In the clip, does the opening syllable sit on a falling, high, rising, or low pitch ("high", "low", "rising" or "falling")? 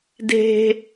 high